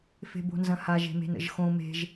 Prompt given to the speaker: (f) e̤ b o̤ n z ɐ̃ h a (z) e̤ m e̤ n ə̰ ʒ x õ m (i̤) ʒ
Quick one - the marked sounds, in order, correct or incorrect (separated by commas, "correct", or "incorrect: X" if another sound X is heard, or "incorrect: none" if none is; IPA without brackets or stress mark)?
correct, incorrect: ʒ, incorrect: e̤